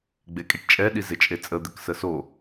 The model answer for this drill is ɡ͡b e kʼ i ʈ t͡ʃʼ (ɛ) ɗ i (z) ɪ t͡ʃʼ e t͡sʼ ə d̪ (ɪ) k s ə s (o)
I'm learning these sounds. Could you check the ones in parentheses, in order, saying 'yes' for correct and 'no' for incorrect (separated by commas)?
yes, yes, yes, yes